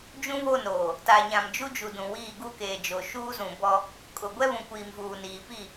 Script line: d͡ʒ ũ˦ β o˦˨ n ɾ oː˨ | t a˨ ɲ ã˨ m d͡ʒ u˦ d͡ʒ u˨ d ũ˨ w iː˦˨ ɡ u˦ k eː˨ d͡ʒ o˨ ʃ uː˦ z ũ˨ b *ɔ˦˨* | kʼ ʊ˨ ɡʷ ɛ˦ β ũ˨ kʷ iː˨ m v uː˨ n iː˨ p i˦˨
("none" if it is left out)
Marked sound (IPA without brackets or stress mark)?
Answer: ɔ˦